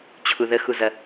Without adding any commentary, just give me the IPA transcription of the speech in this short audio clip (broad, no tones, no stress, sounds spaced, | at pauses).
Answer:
t͡ɕʰ u ð ə x u z ɐ